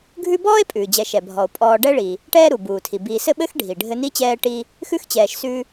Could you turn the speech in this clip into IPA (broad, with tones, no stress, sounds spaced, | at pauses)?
ɡʱ ʉ˦ b ɔː˥ e̯ pʼ ʉː˩ d͡ʑ ɛ˨ ʃ ɛ˩ bʱ ɔ˩ o̯ pʼ ɔː˨ ɖ ɛ˦ ɭ i˩ | ʈ ɛː˦ ɾ u˩ b uː˩ tʰ i˩ b iː˨ s ɘ˦ ɓ ɘ˦ x ɖʱ i˩ ɖʱ ɘ˦ n i˥ t͡ɕ ɛː˦ ʈ i˦ | x ʉ˥ x t͡ɕ ɛː˨ ʃ s ʉ˦